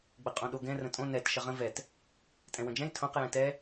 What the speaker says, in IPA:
ɡ͡b ə qʼ õ ɗ o ɡ ɛ̃ r ə̃ tʼ õ n ɛ t ʃ ə ʁ ə̃ v ɛ t | tʼ ɛ̃ w ə̃ d͡ʒ ɛ̃ j tʰ õ q j ɛ̃ t ɛ

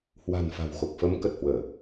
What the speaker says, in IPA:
h w a̤˨˩ n f a̤˨˩ w x o˨˩ k̚ f ə˨˦ m k ə˨˩ t̚ h w əː˧˩˨

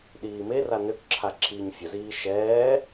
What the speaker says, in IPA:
ɗ iː m e r a n ø k ǁʰ a ǁʰ iː ɲ fʲ ə z iː ʃ ɛː

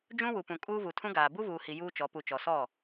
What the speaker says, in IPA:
d͡ʒ ũ˦ w u˨ p ũ˨ kʼ uː˦ v u˨ tʰ ũ˦ ɡ aː˨ b u˦ v uː˨ h i˨ j uː˦ t͡ʃ ɔ˨˦ p u˨ t͡ʃ ɔ˨ s ɔ˦˨

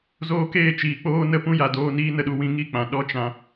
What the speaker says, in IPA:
z oː˧ k eː˦˨ t͡ʃ iː˨ k͡p oː˦ n ə˦˨ p ũ˦ j a˨ d oː˧ n iː˦ n ə˧ ɗ u˧ w ĩ˧ ŋ i˦˨ k͡p ã˨ ɗ ɔ˦ t͡ʃ ã˧

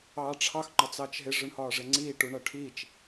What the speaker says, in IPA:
ɑː ʈ͡ʂʰ ɑ x ŋ͡ǃ ʌ t͡s ɑ t͡ʃ ɦ ɪ ʐ ʊ ɳ h ɒː ʐ ɪ ŋ͡ǀ iː ʈ u ɳ ʌ ʈʰ iː t͡ʃ

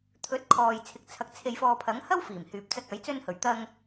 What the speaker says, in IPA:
t̪ʰ ɵ˨˥ t̚ kʰ ɔː˨ j t͡sʰ ɪ˨ k̚ t͡sʰ ɐ˨˥ k̚ t͡sʰ e˧ j f ɔː˧ pʰ ɐ˨˥ ŋ h ɐ˥ w f iː˨˩ m h yː˨ p̚ t͡s ɐ˧ k̚ ɐ˨˧ j t͡s ɵ˥ n h ɵ˨ ɥ t̪ ɐ˥ ŋ

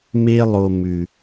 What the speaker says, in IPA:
m e˦ lˠ o˨ m ʉ˨

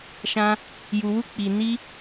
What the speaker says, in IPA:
ʃ ã˦ | j u˧ w u˦ k͡p i˧ n i˦

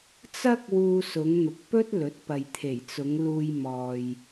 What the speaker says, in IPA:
t͡s ɐ˥ k̚ w uː˧ s ʊ˨˧ ŋ n̪ ʊ˨ k̚ p ɵ˥ t̚ l ɵ˨˥ t̚ p ɐ˨ j t̪ʰ e˨˩ j t͡s ʊ˨˧ ŋ l uː˧ j m ɔː˨ j

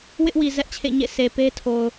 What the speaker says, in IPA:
w ɪ˦ ʔ w i˨ z ɛ˦ ʔ t͡ɕʰ ḛ˦˨ ɲ ḛ˦˨ s e˨ p e˦ tʰ o˨ ʊ̯

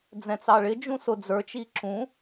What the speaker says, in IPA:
d͡z ɛ̃ t͡s ɑ ɭ ɪ d͡ʒ ũ s ʊ d͡z ə˞ t͡ʃ i ǁ ũ

